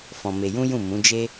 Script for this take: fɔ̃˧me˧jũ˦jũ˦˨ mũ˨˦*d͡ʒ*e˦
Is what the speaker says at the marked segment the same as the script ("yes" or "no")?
yes